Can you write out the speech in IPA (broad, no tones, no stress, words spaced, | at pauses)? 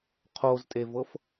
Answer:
qʰoztʼevɤf